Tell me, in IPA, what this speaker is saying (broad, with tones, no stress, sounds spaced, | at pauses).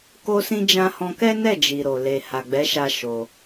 k o˧ s ĩ˧ d͡ʒ ã˧ h ɔ̃˧ k ɛ˦ n ɛ˦˨ d͡ʒ i˨ ɾ o˨ l e˨ h a˨ ɡ͡b ɛ˨˦ ʃ a˧ ʃ o˧